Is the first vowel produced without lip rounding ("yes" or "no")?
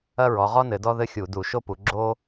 yes